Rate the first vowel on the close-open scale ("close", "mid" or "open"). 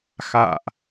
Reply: open